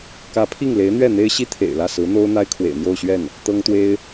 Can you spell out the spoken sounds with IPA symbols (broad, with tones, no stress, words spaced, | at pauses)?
kä˧˥pʰi˥˩ŋ le˧˥ɪ̯n̪ɥɛ˥˩ n̪e˥ɪ̯ ɕi˥ t̪ʰḛ˨˩ɪ̯lä˥˩ sɹ̩˧˥n̪o˥ʊ̯ n̪a˥ɪ̯kʰwḛ˨˩ɪ̯n̪jo˥˧ʊ̯ɕɥɛ˥˩n | t̪ɤ˥ŋt̪we˥ɪ̯